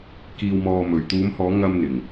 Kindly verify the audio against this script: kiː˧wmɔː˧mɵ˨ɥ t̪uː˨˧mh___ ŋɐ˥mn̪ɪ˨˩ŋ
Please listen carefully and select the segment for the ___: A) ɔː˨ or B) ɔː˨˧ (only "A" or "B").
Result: B